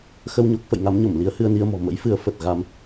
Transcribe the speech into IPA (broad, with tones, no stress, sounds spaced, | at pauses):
x ə˧ w ɲ o˦˥ k̚ f ə̰˧˨ j ŋ a˨˦ m ɲ o˧˩ m l i˨˦ ə̯ h ɨ˧ ə̯ n i˧ ə̯ m ɔ̤˨˩ m ə̰˧˥ j f ɨ˨˦ ə̯ f ə˨˩ t̚ ɣ a˧ m